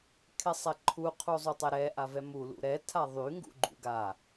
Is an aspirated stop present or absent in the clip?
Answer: present